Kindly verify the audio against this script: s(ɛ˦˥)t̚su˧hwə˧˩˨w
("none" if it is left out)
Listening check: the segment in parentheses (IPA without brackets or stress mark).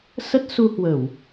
ə˦˥